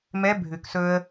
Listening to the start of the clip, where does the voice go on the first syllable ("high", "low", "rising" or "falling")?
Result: rising